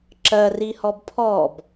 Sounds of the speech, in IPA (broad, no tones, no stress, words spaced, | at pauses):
ǁɜ rihɔbpʰɔb